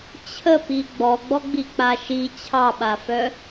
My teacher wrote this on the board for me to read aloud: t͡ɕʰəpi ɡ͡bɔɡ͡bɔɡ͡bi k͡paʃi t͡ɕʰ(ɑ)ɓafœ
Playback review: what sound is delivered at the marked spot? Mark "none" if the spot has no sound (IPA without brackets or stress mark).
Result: ɑ